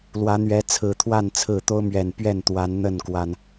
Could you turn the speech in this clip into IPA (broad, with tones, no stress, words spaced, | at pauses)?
lwä˨˦n̪ɥɛ˨˦t͡sʰɹ̩˨˩t̪ʰwa˥˨n t͡sʰɹ̩˥˨ t̪o˦ʊ̯ mɥɛ˨˩npɥɛ˥˨n t̪wa˨˦nn̪ə˥˨n kwa˨˩n